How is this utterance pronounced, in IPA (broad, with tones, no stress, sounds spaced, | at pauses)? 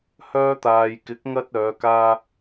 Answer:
h œː˧ t̪ aː˨ j k ɪ˨˥ k̚ ŋ ɐ˧ t̚ œː˨˧ k aː˧